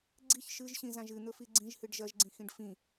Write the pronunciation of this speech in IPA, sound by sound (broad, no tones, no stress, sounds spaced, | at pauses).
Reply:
ɡ͡ǀ i ç ʃ ɨ ʒ ɕ ĩ z ã ʒ ɨ n̪ ɵ f i ɡ͡ǀ ĩ ʒ h ɨ ɖ ʒ ɐ ʒ ɡ͡ǀ ĩ x ĩ ɖ f ĩ